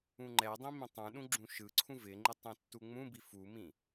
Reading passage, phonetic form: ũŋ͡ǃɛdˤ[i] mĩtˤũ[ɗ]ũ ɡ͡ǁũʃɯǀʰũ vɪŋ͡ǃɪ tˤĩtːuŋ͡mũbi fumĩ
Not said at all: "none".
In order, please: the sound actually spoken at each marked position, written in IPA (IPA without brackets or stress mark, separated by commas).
ĩ, ɗ